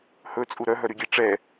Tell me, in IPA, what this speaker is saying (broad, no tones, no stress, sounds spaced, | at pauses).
h ɵ t͡sʼ u ɾ œ ɦ œ ɾ y ɡʲ ɛ ʈ͡ʂ ɛ